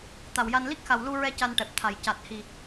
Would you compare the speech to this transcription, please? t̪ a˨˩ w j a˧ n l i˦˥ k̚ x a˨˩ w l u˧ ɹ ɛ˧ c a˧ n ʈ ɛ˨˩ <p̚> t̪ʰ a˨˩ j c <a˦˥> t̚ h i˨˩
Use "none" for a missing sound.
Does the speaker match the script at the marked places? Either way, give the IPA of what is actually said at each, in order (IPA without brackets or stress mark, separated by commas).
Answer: p̚, a˨˩